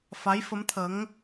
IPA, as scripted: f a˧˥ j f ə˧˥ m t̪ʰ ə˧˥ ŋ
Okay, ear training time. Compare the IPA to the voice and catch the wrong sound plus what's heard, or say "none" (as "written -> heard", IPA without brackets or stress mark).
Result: none